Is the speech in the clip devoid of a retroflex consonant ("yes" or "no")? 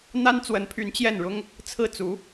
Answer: no